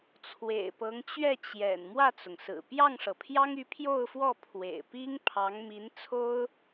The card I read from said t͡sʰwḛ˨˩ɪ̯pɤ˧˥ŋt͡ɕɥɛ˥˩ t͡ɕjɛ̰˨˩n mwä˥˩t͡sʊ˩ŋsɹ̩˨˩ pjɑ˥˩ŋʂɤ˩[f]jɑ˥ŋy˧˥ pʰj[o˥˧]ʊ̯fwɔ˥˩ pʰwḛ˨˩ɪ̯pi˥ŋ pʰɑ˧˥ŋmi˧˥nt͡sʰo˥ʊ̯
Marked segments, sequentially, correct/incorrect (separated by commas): incorrect, correct